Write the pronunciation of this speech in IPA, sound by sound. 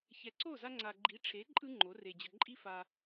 çɛ˨ǀo˦˨za˧ ŋ͡ǀa˨ɡ͡ǃi˨˦ʈ͡ʂʰe˨˦ ǃʼɯ˦ŋ͡ǃo˨˦ re˨ d͡ʑə˨ ǃʼi˦fa˧

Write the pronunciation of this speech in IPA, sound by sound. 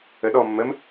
əɗɔ mːəm

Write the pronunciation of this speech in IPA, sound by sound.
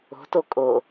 o̤to kʼo

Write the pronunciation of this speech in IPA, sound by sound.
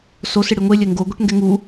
so sɪɽiŋʷe lʲɛŋɡo ɡʷɛʈŋɡɛŋu

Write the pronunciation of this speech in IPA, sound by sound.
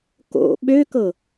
ko̰ ɓøkɤ

